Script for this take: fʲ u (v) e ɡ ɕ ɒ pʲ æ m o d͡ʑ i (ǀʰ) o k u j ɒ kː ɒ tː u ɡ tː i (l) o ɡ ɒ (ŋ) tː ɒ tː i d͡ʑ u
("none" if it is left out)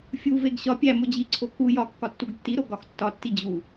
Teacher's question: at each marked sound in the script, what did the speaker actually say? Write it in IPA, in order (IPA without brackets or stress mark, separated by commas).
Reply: v, ǀʰ, ɾ, x